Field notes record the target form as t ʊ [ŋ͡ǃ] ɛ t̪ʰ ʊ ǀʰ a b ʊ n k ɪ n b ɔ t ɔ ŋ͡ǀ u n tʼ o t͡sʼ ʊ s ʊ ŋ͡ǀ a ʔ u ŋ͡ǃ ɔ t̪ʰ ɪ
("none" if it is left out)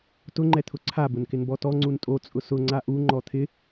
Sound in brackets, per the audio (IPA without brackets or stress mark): ŋ͡ǃ